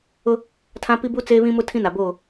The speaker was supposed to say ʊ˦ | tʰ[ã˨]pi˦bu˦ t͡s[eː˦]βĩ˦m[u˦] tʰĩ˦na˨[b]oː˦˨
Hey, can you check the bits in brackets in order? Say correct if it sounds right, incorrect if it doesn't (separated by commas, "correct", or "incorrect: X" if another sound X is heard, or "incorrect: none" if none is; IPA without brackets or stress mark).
incorrect: ã˦, correct, incorrect: ʊ˦, correct